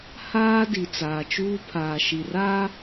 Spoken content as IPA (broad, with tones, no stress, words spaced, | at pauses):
haː˦di˨ t͡saː˨t͡ʃuː˦ pʰaː˨ʃi˨raː˦